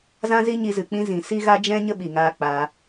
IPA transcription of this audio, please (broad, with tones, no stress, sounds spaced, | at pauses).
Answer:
z ã˦ z i˦ ɲ i˧ z ɨ˨ k͡p ĩ˧ z ĩ˨ s i˦ ɣ a˦ d͡ʒ ɛ̃˦ ɲ ə˦ ɓ i˨ ŋ aː˧ k͡p a˧